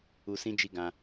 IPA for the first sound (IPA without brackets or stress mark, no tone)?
u